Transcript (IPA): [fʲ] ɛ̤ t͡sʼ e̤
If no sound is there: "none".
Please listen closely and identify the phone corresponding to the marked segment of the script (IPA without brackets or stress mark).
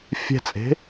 fʲ